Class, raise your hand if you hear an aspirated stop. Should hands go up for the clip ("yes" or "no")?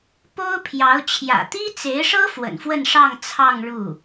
yes